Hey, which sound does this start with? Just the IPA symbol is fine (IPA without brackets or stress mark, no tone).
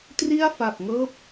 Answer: t